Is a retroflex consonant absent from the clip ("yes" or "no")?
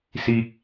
yes